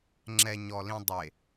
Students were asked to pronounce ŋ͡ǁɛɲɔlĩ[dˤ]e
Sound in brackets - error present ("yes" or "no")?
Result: no